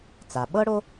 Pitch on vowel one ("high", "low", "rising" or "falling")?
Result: low